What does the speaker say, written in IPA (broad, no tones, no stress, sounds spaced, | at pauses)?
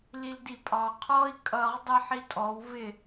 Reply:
l i l d i pʼ ɑ qʰ ɔ i̯ kʼ ʌ ʁ dˤ i ħ i tʼ ɔ w v ɪ